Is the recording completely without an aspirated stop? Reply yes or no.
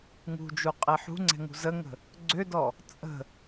yes